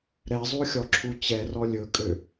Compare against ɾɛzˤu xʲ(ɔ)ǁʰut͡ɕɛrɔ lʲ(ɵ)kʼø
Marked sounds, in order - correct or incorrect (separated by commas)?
correct, correct